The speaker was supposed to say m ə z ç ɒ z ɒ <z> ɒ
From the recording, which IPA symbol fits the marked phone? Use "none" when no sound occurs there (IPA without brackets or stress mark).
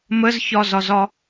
z